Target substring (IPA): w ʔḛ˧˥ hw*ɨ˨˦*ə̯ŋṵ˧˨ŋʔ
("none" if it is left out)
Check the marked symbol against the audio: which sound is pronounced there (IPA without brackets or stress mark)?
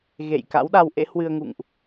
ɨ˧